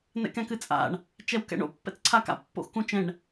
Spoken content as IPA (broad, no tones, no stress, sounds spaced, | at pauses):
n ɛ̰ k ɛ̃ k ɨ t͡sʼ a̰ ɳ | t͡ʃ ɛ w k ɛ̰ ɳ o̰ pː ɛ̰ t͡s ǀʰ a k a̰ pː o̰ x k ũ t͡ʃ ɛ̃ ɳ